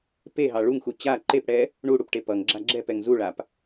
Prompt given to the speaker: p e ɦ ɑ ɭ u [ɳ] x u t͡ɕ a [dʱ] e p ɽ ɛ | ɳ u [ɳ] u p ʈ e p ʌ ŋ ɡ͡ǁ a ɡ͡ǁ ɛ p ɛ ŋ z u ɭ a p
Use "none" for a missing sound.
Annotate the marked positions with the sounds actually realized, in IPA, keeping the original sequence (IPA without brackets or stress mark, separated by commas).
ŋ, ǃ, ɽ